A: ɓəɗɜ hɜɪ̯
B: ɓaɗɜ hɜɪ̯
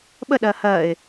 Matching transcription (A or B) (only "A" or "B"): A